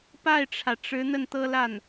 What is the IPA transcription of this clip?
pa˥˩ɪ̯ʈ͡ʂʰä˩ʈ͡ʂɻ̩˧˥ n̪ə˥˩nt̪ɤ˥la˥˩n

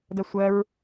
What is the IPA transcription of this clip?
dɜsʷɜɹ

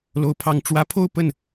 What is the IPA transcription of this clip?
lo˧˥ʊ̯pʰɑ˧˥ŋ ʈ͡ʂwä˧˥pʰo˥˧ʊ̯ pə˥˩n

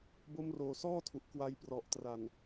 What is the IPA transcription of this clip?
bo˦˥mroː˨˩sɔː˥˩tʰu˨˩ʔ kwa˧jprɔ˨˩ʔtra˨˩n

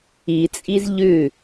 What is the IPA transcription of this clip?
it͡sʼiz ʎʉ

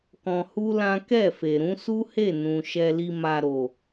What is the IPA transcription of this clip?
kɔ̃˧hu˦lã˦ kɛ˦˨fe˨ɾũ˨˦ su˦he˦˨nũ˨ ʃɛ˧li˧ma˧ɾo˨

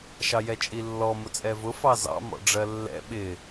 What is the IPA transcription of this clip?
ʃɑjɛt͡ʃʼilːɔ mʊt͡sʼɛvʊ fɑzɑ̰ mɔ̰ɖ͡ʐɜlːɛ̰ ɓɪ

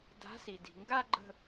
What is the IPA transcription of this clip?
da̤˨˥si˩di̤˩ŋɡa˥˧ ɡ͡ǃə̤˥˧

